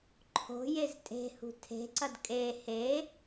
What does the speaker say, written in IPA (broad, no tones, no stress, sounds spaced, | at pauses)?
ǃʰ o̤ j e z tʼ e̤ h ṳ tʰ e̤ ǀ ɐ d kʼ e h e